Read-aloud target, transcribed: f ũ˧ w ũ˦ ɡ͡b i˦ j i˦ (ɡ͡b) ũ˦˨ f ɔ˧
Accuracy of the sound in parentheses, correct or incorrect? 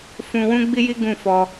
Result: incorrect: ɡ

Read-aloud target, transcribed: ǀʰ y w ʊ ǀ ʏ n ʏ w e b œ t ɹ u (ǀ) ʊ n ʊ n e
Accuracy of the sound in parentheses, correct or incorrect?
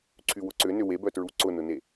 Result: correct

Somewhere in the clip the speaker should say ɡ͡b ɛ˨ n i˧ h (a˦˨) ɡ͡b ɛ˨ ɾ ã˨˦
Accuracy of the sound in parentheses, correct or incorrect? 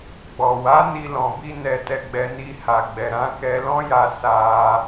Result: incorrect: a˨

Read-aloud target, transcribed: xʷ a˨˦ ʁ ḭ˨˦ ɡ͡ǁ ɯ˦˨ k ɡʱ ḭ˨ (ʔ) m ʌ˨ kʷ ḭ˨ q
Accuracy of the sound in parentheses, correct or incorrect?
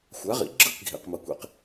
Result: incorrect: q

